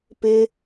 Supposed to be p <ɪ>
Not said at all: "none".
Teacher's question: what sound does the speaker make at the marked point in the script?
ɪ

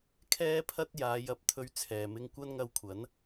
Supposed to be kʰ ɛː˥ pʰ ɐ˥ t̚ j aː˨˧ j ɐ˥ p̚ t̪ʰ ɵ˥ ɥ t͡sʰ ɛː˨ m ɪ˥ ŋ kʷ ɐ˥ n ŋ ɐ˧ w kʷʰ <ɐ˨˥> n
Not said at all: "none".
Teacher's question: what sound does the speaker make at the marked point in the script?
ɐ˨˥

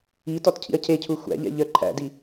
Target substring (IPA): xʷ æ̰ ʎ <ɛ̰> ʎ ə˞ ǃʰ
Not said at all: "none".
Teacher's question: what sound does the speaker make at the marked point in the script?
ɛ̰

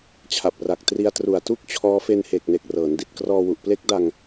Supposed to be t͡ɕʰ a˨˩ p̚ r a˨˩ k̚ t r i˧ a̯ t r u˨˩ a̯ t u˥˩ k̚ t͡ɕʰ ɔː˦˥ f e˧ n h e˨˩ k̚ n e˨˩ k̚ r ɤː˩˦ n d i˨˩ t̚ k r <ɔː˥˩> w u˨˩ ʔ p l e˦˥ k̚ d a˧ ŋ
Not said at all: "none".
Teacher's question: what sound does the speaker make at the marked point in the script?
ɔː˧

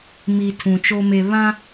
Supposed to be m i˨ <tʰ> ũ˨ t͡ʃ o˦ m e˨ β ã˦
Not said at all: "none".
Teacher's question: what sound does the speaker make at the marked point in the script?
tʰ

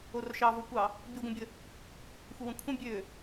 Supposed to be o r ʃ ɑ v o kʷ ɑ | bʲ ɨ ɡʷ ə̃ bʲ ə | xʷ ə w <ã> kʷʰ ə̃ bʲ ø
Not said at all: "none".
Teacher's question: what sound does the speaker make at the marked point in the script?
ə̃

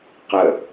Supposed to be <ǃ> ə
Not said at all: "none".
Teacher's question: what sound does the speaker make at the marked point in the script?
q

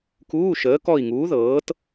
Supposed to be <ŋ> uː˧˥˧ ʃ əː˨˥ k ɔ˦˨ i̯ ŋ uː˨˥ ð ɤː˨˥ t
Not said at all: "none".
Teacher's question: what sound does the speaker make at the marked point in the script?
k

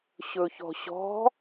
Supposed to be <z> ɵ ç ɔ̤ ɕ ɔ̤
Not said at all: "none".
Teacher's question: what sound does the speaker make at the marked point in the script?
ɕ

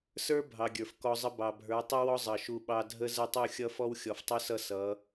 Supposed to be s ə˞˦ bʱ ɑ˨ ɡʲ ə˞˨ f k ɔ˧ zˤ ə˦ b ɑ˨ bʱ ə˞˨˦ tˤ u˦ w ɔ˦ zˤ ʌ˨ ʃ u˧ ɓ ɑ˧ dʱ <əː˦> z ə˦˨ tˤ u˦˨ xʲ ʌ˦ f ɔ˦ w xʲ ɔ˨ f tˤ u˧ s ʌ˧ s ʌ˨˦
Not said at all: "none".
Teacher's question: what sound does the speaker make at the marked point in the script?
ə˦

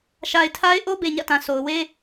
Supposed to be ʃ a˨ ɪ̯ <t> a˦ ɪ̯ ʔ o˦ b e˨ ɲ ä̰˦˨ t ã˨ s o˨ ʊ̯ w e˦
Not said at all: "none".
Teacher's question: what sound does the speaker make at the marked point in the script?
tʰ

